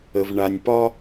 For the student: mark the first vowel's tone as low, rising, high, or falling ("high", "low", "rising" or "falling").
low